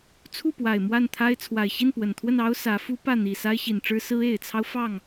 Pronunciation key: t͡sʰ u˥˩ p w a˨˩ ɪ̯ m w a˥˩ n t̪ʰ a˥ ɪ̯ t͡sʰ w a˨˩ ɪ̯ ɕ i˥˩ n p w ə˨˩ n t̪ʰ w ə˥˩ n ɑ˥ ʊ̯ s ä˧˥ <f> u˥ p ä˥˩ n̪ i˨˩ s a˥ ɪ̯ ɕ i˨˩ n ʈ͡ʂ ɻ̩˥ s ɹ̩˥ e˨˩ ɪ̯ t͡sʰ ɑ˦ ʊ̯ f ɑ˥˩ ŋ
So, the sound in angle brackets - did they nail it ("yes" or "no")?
yes